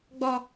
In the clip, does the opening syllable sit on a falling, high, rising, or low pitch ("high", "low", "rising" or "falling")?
high